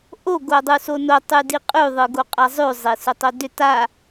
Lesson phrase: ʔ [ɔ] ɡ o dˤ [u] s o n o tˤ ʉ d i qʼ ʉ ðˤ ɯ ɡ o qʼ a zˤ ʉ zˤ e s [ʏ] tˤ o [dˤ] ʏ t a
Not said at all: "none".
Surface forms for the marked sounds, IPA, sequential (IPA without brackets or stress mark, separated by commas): o, u, ʏ, d